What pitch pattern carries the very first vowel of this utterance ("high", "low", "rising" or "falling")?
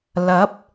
rising